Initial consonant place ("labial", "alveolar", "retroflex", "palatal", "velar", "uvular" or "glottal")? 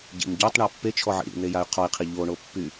palatal